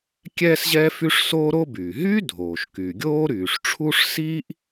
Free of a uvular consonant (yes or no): yes